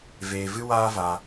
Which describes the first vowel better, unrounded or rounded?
unrounded